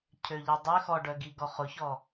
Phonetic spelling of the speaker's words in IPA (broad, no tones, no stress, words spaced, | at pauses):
cʰøʎedˤø xɔɖœɡi ɡɔχʊçɔ